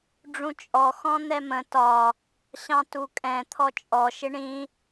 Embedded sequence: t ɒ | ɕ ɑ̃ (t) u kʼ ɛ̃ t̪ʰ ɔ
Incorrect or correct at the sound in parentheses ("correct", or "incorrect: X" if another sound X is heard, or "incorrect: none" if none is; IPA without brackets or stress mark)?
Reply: correct